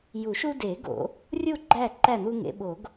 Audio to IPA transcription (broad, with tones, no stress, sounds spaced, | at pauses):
j u˨˩˦ ʃ u˦ d e˨˩˦ ɡ o̰˨˩˦ | rʲ u˥˨ ɡ͡ǃ æ˥˨ ǃ æ˥˨ n̪ u˦ ŋ ḛ˨˥ ɓ o˨˩˦ ɡ